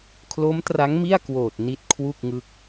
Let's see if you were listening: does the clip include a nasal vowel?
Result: no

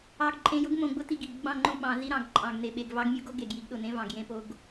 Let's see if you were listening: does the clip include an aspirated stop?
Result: no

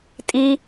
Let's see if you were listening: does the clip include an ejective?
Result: yes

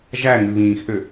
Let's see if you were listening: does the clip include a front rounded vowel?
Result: yes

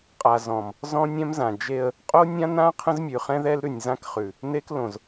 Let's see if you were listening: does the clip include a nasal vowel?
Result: yes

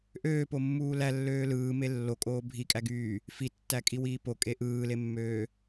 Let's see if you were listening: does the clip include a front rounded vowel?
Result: yes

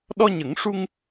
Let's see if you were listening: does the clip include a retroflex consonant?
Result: yes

